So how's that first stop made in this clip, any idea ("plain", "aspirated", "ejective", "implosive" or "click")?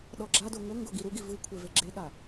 implosive